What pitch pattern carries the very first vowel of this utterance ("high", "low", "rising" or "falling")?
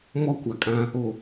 high